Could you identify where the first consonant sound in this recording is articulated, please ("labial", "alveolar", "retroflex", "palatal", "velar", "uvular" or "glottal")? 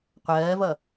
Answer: uvular